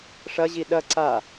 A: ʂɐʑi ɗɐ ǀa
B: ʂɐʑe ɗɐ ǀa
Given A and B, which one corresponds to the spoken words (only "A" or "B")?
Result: A